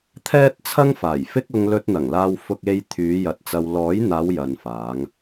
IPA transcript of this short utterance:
t̪ʰ ɛː˥ t̚ t͡sʰ ɐ˥ ŋ f aː˨˩ j f ɪ˥ k̚ ʊ˧ ŋ l ɵ˧ t̚ n̪ ɐ˨˩ ŋ l aː˧ w f ʊ˧ k̚ e˧ j t̪ʰ yː˨˧ j ɐ˨˥ t̚ t͡s ɐ˧ w l ɔː˨˥ j n̪ aː˨˧ w j ɐ˨ n f aː˨˧ ŋ

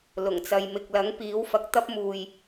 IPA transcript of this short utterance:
l ʊ˨˩ ŋ t͡s ɐ˨ j m ɪ˨ k̚ l ɐ˨˥ ŋ p iː˨˥ w f ɐ˨˥ k̚ t̪ ɐ˥ p̚ m uː˨ j

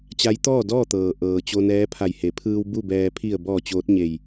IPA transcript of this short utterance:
t͡ɕ a˧˥ j t̪ ɔː˥˨ d ɔː˥˨ t̪ ɤː˩ ʔ ɤː˩ t͡ɕ o˧ n ɛː˧˥ pʰ a˧˩ j h e˩˧ pʰ ɯː˧ w b u˥˨ b ɛː˧ pʰ i˧˩ ə̯ b ɔː˧˩ t͡ɕ oː˧˥ t̚ ɲ e˧˩ j

